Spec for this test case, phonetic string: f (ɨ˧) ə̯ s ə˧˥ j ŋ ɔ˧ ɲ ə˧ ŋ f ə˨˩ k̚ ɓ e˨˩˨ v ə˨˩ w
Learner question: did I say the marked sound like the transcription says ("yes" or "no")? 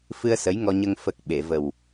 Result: yes